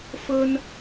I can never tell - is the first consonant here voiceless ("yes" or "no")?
yes